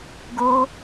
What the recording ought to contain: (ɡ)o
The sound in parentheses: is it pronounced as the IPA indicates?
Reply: yes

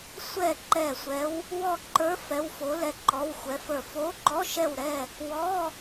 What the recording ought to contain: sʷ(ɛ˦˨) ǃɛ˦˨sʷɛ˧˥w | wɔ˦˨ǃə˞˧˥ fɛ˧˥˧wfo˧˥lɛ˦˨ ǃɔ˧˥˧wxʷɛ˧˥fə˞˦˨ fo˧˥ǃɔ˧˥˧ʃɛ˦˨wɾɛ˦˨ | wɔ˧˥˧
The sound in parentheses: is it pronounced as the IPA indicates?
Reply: yes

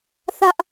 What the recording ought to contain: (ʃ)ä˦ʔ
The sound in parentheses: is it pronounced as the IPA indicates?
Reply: no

